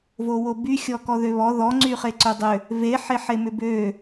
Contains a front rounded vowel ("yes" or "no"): yes